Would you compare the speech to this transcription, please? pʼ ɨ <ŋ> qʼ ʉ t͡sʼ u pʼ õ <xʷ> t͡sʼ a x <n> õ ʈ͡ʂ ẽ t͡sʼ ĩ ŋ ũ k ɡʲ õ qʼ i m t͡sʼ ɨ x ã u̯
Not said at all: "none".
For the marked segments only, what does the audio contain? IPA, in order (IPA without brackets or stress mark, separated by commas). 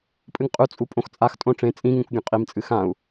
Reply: ŋ, x, tʼ